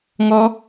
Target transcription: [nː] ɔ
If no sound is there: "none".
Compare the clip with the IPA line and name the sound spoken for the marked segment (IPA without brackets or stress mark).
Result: ŋ